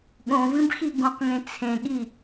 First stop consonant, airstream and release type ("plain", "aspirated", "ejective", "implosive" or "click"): implosive